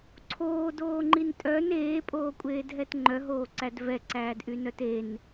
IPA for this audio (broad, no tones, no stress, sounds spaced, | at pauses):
ǀʰ oː d oː ŋ͡ǃ i n tʼ œ n eː pʼ oː kʷʼ eː d ɦ ɛ t ŋ͡ǃ œ ɦ oː ǀ æ d v ɛ ǀ æː d ʔ y n œ t e n